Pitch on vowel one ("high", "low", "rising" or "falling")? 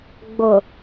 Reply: low